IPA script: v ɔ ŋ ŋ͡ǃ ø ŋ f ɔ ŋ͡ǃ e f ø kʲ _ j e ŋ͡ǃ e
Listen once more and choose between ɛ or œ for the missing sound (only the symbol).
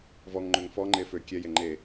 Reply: ɛ